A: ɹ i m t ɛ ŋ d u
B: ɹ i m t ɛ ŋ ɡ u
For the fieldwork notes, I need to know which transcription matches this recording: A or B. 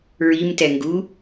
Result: B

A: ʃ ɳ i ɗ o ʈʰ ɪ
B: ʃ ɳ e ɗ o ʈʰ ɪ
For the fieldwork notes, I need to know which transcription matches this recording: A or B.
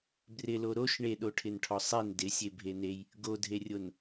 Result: B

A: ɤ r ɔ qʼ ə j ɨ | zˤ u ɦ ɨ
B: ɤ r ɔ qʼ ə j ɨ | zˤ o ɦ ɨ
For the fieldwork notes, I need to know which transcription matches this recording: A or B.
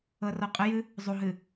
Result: A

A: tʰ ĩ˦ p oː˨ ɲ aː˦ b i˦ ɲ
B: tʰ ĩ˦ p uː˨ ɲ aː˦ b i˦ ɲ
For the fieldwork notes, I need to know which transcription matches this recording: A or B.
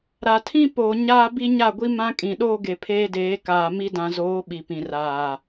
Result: A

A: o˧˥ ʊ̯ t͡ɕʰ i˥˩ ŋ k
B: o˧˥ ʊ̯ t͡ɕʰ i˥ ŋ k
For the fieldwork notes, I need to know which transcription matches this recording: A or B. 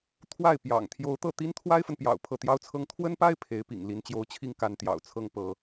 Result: B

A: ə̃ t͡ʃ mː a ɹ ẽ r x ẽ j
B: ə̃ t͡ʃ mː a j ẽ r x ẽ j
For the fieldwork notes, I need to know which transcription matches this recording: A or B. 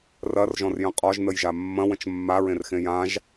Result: A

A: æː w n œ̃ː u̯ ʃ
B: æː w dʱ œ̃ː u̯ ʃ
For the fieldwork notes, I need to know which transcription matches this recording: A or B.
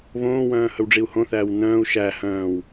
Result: A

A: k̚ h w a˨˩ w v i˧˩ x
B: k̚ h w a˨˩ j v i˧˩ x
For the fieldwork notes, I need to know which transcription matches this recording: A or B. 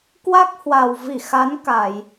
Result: A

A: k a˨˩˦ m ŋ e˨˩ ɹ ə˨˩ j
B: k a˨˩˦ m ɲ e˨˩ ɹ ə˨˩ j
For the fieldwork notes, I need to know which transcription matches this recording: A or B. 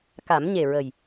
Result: B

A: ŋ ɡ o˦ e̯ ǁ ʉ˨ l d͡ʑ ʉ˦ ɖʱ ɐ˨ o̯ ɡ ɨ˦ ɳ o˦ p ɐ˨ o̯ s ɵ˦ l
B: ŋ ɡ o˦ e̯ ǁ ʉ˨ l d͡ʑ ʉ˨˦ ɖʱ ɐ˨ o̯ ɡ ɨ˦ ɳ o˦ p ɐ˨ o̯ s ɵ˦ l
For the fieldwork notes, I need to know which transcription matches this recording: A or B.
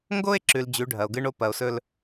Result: B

